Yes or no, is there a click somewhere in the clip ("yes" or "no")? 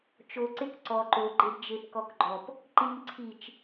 yes